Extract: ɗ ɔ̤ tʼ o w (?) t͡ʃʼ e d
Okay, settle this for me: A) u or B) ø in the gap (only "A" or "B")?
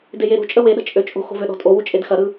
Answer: A